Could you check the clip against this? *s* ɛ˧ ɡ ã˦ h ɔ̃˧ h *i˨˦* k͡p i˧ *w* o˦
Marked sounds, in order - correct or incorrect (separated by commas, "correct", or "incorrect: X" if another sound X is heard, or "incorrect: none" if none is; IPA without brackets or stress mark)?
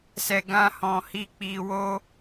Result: correct, incorrect: i˧, correct